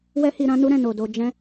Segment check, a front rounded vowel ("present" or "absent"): absent